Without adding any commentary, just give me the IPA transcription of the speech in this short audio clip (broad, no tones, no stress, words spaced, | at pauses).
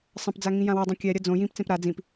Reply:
sˤɐ̃pd͡za ŋĩjãwodˤũ kʲɛɾʲɐ d͡zõ jĩpt͡sẽp ɾa d͡zĩp